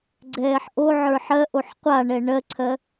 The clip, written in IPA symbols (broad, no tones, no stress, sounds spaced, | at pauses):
ɡ͡ǀ ɛː ħ ʔ o ʕ ə˞ ħ ɜ ʔ o ħ qʷ a ɳ ɛ ɳ ɜ ǀʰ ɜ